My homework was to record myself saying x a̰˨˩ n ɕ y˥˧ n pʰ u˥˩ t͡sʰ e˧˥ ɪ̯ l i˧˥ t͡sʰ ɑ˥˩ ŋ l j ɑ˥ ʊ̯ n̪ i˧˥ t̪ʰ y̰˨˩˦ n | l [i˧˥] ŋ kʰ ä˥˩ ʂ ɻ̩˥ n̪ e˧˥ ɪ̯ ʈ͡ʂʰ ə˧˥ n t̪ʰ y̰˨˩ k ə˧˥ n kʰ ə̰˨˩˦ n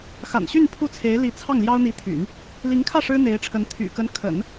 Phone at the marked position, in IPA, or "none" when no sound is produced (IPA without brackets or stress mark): i˧˥